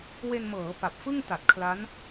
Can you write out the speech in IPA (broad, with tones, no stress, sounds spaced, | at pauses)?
w e˧ n m ɤː˩˦ p a˨˩ p̚ f ɯ˥˩ ŋ t a˨˩ t̚ kʰ l a˦˥ n